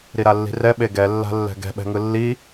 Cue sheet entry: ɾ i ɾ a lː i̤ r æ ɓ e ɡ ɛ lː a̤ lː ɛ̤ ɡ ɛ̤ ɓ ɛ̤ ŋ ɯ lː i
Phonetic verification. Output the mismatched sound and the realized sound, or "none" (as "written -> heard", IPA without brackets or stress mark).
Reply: æ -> ɛ